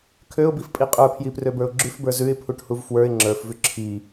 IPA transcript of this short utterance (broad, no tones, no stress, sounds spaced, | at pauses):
kʰ ø ʊ̯ b i f pʼ i qʼ ə˞ pʰ j i p r ø b ə˞ ʊ̯ ɡ͡ǁ ʉ f b ə˞ z ʉ ɪ̯ pʰ u ʈ h u v f w ə˞ ɪ̯ ŋ͡ǁ ə˞ f v ʉ ǁʰ i